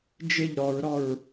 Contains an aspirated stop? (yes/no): no